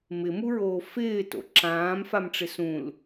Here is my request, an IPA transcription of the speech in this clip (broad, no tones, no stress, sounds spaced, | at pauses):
m ɪ m u ɹ oː f ɪː t o̰ ǁ ãː m f a m ʈ͡ʂ ɪ s ũ l